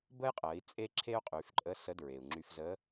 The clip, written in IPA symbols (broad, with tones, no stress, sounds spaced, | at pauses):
b ə˥ j qʼ ɜ˩˧ i̯ t͡sʼ e˥ ǁʰ e˥ u̯ qʼ y˩˧ f ǃʼ ə˧˥ s ə˧˥ d ɹ e˩ u̯ ŋ͡ǁ y˧ f z ə˧˥